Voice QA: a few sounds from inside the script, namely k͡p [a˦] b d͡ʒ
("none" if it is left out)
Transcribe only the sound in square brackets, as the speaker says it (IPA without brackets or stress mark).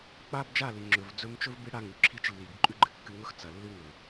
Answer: a˦